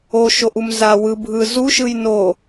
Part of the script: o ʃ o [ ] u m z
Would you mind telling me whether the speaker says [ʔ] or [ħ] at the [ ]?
ʔ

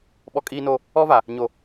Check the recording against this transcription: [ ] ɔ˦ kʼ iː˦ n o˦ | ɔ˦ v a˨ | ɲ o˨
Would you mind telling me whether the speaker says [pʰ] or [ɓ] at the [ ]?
ɓ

